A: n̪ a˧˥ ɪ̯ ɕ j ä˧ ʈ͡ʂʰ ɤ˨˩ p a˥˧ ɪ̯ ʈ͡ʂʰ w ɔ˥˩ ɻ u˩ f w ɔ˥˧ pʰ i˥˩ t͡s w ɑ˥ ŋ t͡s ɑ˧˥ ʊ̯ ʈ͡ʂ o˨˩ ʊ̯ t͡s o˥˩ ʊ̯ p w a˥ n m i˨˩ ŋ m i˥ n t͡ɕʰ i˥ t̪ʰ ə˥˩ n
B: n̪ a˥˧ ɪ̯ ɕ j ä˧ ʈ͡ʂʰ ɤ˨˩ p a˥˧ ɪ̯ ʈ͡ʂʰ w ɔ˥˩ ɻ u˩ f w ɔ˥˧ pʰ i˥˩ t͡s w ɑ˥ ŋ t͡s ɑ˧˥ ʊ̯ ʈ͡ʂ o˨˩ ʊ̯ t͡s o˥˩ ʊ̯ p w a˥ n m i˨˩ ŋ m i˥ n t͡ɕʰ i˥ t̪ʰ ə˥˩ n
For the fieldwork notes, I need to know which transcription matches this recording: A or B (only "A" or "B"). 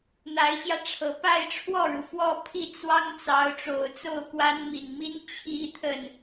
A